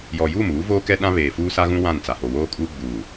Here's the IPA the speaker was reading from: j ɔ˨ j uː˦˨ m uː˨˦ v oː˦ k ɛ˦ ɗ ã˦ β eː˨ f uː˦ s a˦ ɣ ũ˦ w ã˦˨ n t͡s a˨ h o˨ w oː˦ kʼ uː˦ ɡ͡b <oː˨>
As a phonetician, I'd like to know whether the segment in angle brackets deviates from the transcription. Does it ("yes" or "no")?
yes